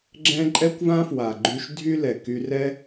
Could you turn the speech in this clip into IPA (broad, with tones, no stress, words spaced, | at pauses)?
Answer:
ɡ͡ǁɛ̃˥ ǃʼɛ˥kʷvã˥fwa˩ ɡ͡ǃy˧ʃ dʱy˥lɛ˩ ky˧rɛ˥